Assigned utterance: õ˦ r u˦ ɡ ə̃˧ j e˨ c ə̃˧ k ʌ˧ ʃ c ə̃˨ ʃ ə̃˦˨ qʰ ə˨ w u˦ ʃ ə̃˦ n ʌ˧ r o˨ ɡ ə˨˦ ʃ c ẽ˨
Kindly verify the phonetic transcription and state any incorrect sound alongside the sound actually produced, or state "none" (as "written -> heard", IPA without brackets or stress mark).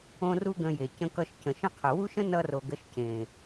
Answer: none